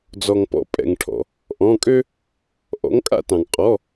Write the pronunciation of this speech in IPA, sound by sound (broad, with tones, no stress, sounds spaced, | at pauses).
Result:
d͡z ɔ˩ ŋ p ɔ̰˩˥ pʼ ɛ̰˩ ŋ ʈʰ ɔ̰˩ | ʔ ɔ̃˩˧˩ kʼ ø˦ | ʔ ɔ̰˩˥ ŋ kʼ a̰˦ t ɑ̃˩ ŋ qʼ ɔ˩˧˩